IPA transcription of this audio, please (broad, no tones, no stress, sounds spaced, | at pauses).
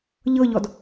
ʎ ɤ ʎ ɔ d